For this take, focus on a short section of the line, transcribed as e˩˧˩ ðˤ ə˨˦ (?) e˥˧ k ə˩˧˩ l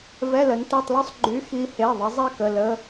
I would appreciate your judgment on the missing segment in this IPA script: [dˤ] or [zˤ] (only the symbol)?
zˤ